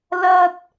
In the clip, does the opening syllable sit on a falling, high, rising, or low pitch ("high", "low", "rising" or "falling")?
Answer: high